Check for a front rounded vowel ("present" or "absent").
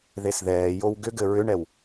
present